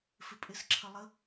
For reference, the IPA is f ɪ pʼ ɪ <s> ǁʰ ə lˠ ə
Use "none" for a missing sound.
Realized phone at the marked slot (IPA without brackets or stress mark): s